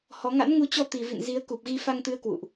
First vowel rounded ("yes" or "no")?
yes